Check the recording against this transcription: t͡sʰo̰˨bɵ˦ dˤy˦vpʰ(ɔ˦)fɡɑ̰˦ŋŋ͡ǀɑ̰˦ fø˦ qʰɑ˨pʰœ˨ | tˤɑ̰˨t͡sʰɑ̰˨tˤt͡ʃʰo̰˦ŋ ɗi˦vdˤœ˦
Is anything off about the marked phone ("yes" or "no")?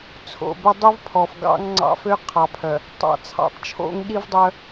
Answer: yes